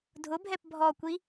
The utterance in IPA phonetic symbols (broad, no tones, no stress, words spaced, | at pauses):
dʱʊbʱɛp bʱɔkʷi